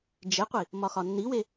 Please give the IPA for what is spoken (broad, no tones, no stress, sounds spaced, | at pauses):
d͡ʒ e qʷ i | m ɒ x ɒ nː i w e